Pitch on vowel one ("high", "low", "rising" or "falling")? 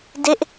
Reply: falling